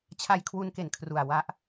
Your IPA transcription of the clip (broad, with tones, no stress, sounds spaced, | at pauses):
t͡ɕʰ a˧ j kʰ w u˧ n k e˨˩ n kʰ r u˨˩ a̯ w a˥˩ ʔ